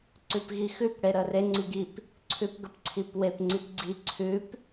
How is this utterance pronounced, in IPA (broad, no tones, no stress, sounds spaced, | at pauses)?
ǀ ʉ p ɣ i x ʉ p ɽ e ɾ ə r e ŋ͡ǀ i ɡ i p | ǀʰ ʉ p ɡ ə p ǀʰ i p w e p ŋ͡ǀ i p ɡ͡ǀ i ǀʰ ʉ p